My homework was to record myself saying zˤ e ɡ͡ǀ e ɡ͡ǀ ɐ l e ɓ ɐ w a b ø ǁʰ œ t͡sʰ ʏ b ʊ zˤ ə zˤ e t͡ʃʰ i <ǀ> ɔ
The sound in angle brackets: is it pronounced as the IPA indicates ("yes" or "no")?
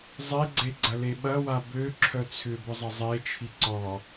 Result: yes